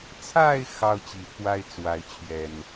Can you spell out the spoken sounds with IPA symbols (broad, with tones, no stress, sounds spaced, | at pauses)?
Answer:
t͡sʰ a˥˨ ɪ̯ x ɑ˦ ʊ̯ t͡ɕ i˨˩ t̪ʰ w a˦ ɪ̯ t͡s w a˨˦ ɪ̯ t͡ɕʰ ɥ ɛ˨˩ n